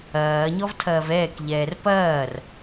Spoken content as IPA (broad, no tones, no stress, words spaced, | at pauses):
ɐːɲɔv tʰɐːvɛːkʎɛːr pɐːr